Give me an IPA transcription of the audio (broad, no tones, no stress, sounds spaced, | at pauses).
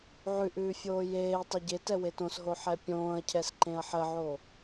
ʕ ʉ ʔ ʉː fʲ oː j eː tˤ ɛ ɟ e t ɛ w e t õ s ɦ o ħ ɛ pʲ õː ɐ̯ cʰ ɛ s ǃ ẽ ɐ̯ ħ ə ʕ o